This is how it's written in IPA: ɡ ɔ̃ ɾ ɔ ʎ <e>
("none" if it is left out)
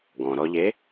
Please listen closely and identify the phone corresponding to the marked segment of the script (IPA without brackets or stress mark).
e